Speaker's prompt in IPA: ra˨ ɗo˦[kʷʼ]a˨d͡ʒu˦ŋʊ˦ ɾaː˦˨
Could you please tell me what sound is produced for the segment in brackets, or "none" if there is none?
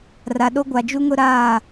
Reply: ɡʷ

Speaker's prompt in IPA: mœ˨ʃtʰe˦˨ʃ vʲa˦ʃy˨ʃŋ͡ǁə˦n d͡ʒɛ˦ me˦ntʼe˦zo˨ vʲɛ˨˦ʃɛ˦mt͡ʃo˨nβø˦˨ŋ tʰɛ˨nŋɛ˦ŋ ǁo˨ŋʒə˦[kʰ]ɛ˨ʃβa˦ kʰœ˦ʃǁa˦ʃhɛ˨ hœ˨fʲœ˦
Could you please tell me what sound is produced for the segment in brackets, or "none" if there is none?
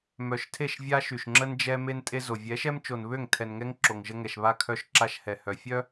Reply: ŋ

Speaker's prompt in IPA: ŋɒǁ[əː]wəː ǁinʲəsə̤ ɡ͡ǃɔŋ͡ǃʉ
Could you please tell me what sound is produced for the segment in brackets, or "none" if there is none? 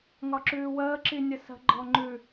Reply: ʉː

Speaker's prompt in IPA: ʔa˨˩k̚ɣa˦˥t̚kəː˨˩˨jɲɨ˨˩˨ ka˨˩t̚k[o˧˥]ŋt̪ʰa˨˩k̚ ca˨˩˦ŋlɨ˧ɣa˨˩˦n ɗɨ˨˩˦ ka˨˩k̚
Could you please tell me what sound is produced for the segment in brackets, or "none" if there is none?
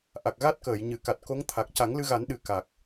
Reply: o˧˥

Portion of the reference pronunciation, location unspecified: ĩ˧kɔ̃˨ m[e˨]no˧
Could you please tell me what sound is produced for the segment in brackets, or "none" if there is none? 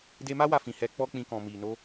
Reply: i˨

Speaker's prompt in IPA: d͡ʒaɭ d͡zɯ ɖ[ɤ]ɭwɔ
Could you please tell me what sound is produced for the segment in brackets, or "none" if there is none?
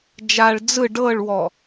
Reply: ɤ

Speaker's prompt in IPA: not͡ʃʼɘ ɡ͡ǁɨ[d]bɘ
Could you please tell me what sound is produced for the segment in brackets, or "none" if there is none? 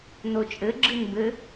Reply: n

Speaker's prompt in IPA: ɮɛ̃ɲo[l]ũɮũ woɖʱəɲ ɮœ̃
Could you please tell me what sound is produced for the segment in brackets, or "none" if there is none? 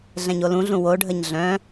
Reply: l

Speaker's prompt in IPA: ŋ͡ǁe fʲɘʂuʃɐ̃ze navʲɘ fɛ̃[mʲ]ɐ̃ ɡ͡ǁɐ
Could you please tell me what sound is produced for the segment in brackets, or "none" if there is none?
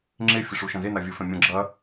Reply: mʲ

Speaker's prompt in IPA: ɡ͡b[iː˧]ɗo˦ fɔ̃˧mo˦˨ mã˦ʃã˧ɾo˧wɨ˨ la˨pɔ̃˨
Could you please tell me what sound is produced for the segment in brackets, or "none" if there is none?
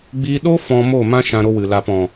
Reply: iː˧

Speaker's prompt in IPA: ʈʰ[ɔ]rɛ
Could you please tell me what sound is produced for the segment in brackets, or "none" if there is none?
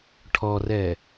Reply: ɔ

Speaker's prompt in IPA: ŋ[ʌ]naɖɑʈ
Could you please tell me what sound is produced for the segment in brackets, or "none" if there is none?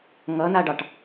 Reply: ʌ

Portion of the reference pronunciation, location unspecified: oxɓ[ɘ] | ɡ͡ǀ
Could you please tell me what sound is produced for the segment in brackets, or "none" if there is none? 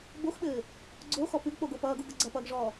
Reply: ɘː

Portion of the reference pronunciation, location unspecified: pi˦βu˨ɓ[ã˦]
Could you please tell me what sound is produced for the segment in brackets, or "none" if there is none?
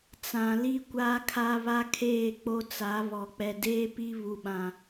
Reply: ã˨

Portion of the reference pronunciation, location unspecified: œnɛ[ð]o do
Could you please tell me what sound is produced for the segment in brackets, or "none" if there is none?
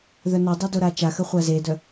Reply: dˤ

